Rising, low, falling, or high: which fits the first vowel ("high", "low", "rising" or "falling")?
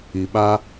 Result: low